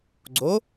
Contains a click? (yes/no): yes